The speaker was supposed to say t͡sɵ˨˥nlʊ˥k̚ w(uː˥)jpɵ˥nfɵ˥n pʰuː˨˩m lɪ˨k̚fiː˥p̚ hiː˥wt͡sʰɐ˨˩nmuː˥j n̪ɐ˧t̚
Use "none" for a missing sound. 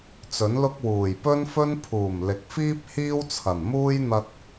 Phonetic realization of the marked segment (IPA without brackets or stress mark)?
uː˨˩